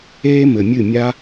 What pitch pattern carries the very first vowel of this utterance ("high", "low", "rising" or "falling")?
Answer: high